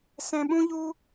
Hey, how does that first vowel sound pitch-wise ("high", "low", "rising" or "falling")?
low